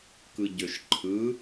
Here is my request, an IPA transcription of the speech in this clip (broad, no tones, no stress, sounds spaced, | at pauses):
k ɯ ɟ ø ʃ ǃʰ ɯ